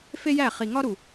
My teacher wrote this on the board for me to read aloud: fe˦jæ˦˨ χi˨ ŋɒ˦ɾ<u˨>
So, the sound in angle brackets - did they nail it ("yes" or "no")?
yes